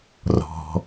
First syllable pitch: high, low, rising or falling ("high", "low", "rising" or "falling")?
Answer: low